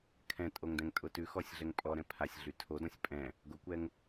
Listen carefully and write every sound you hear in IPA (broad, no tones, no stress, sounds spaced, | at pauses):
kʰ ɛ̃ tʼ o ŋ d ɛ̃ ŋ tʼ ʊ t ʉ x ɔ sʲ ɮ ɛ ŋ pʼ ɔ ɾ ɛ̃ pʰ a sʲ ɮ y tʰ o d ɔ̃ sʲ pʼ ɛ̃ | ɡ ʊ kʷ ɛ ŋ